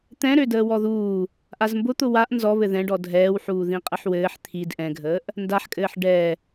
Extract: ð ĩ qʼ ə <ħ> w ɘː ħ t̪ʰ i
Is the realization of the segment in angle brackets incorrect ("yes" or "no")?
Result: no